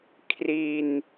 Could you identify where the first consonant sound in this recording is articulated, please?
velar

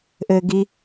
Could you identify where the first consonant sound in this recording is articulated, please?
glottal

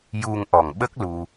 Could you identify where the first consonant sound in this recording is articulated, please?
palatal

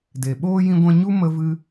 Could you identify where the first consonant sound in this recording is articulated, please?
alveolar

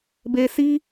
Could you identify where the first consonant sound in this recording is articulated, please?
labial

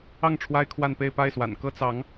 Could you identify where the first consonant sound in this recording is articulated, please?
velar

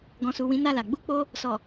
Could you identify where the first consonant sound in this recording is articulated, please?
velar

